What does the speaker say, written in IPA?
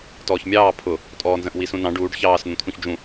t ɔː ç mʲ ɑː pʰ ʊ | tʼ ɔː n z ə̃ ʔ w i s ũ n ɑ̃ ɖ uː ɖ ç ɑː s n̪ ũ t̪ʰ ũ ç d͡ʒ ũ

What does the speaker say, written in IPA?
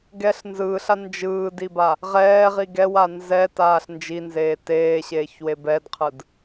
ɡ ɛ ɬ n z ɯː ɬ a n d͡ʒ ɯː d i b a | ʁ ɛː ʁ i ɡ ɛ w a n z ɛ t aː ɬ n d͡ʒ i n z eː t eː ɕ eː ç w e b ɛ d qʰ ɯ d

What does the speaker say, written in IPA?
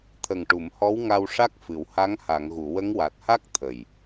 t̪ʰ ə˨˩ ŋ ʈ u˨˩˨ m h ɔ˧˥ w ŋ a˧ w ʂ a˦˥ k̚ f ɨ˨˩˨ w h a˧˥ ŋ h a˨˩˨ ŋ ɣ u˨˩˨ w ə˧˥ ŋ w a˨˩ t̚ h a˦˥ k̚ t̪ʰ ə˨˩ j

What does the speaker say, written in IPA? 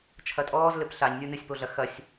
t͡ʃʰ ɐ tʼ ɔː z l ɘ p ɬ a ɲ nʲ u n ɨ sʲ p o ɮ ɐ x ɐ sʲ

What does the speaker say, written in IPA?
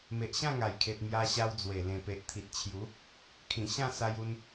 m e˨ ʔ ɕ ã˥˧ ŋ a˨˩ j kʰ e˨ t̚ m j a˧ ɕ a˧ w d͡z w e˨˩ l ẽ˨˩ p e˨ ʔ t̪ʰ i˨ t̚ t͡ɕʰ j u˨˦ | kʰ ĩ˨˩ ɕ ã˥˧ s a˦ j u˦ n

